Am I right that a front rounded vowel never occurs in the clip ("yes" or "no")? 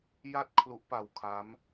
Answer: yes